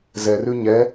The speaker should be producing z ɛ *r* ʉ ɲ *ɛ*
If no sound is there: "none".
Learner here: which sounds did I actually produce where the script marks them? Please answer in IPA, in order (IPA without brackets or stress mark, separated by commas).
r, ɛ